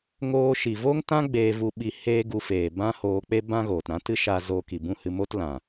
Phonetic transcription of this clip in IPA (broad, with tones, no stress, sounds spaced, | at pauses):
ŋ oː˧ ʃ i˨ v o˦ ŋ t ã˦ ɡ͡b eː˧ v u˧ ɓ i˧ h eː˦ ɡ u˧ f eː˨ b ã˦ h oː˧ k͡p e˦ b ã˦ ɣ oː˨ t ɾ ã˦ t ɨ˦ ʃ a˧ z oː˧ k i˨ b ũ˦˨ h ɨ˧ m o˦ t l ã˨